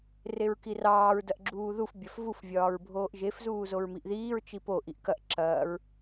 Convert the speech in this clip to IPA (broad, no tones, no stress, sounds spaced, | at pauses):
r e ɹ k i r ɑː ɹ d ɐ ʔ ɡ͡ǁ uː ð u f bʲ ɐ f v u f vʲ ɒː ɹ bʱ oː ʔ ʒ e f z uː z o ɹ m i ʔ ð iː ɹ t͡ʃ i p o ʔ i ʔ k ɐ ʔ ǁ ɐː ɹ